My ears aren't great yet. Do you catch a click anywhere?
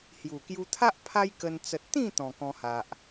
no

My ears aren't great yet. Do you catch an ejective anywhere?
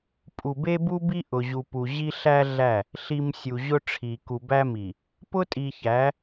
yes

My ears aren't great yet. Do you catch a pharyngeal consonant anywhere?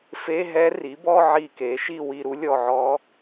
yes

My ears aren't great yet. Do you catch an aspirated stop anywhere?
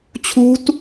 yes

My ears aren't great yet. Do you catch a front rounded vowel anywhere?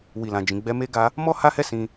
no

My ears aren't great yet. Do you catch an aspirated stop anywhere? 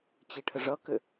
yes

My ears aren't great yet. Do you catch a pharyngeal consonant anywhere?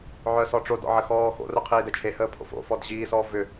yes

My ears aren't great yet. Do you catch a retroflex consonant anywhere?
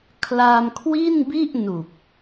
no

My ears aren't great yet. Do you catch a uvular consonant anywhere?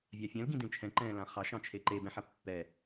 yes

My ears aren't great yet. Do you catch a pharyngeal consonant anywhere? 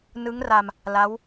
no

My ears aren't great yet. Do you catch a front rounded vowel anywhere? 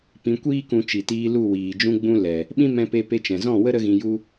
no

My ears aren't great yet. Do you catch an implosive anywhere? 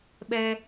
yes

